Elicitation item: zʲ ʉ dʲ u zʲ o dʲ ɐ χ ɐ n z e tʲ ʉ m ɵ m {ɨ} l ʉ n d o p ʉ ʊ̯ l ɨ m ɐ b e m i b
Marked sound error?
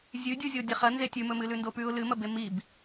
no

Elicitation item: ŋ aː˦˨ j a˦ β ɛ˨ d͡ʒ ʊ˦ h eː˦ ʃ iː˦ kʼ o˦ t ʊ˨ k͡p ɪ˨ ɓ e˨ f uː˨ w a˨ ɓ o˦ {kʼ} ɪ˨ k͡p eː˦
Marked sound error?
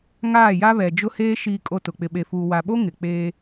yes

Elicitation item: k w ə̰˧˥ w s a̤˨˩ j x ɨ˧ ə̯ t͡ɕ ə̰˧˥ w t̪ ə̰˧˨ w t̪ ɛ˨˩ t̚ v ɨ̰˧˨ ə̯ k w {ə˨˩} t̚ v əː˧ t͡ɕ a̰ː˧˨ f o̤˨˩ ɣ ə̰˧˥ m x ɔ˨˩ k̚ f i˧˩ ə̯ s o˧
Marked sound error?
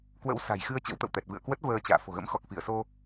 yes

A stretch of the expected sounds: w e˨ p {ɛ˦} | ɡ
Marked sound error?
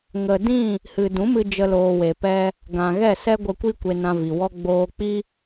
no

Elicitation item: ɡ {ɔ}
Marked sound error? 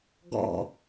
yes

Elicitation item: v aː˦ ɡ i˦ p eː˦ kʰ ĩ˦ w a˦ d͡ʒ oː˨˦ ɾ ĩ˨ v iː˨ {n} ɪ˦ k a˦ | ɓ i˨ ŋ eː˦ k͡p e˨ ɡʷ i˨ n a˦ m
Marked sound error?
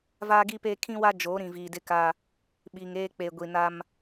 yes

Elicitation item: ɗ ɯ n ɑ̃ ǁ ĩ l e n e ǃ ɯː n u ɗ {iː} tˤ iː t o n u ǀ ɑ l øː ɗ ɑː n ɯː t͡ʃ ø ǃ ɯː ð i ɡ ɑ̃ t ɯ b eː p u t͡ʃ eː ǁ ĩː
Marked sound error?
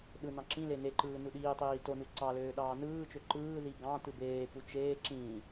no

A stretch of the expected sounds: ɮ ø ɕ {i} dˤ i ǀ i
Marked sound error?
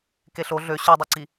yes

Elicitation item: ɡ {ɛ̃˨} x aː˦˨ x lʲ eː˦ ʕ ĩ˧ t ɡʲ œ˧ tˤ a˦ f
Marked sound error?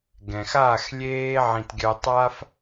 no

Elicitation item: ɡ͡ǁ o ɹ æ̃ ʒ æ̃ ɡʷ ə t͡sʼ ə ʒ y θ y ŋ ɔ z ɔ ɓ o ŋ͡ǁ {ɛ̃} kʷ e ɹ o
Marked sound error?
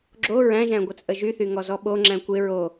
yes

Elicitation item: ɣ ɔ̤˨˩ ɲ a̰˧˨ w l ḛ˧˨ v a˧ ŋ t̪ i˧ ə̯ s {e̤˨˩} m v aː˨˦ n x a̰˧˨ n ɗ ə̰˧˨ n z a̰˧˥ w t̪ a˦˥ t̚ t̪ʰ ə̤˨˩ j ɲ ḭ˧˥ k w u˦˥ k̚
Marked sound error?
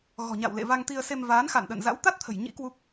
yes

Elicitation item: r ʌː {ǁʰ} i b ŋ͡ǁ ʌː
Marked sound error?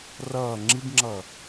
yes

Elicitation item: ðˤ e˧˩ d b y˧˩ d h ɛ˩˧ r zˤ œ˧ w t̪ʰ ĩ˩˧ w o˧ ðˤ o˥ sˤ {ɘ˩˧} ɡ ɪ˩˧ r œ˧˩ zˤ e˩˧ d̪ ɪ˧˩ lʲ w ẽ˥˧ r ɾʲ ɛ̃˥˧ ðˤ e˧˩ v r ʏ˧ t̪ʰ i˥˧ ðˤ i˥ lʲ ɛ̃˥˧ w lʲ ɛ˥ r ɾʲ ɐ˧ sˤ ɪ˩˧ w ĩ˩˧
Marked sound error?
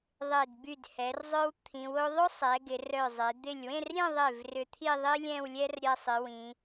yes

